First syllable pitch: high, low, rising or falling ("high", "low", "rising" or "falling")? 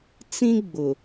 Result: high